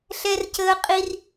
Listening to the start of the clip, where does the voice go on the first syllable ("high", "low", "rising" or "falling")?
high